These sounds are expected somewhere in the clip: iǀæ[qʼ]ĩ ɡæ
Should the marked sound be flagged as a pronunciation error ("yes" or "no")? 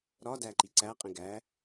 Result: no